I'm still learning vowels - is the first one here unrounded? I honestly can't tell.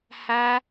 yes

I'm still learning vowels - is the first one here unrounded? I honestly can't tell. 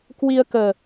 yes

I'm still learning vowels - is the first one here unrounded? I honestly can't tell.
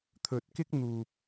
no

